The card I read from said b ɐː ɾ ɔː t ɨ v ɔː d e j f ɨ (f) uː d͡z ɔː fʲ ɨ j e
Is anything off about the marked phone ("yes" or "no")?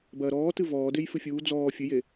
yes